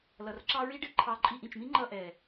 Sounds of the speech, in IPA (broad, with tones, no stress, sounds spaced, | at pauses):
l ʌ˨ r ǁ ɑ˦ ɹ i˦ ɖ ɪ˦ ǃʰ ɑ˧ ǃʼ i˧ ʔ ĩ˨ t͡ʃ m ĩ˦ ŋ͡ǃ ʌ˦˨ ʔ ɛ˨